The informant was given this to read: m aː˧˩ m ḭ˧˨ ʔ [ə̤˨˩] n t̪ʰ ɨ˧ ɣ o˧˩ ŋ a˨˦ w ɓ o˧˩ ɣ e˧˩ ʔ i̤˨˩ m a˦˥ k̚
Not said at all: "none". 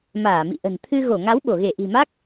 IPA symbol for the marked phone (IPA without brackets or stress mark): ə̤˨˩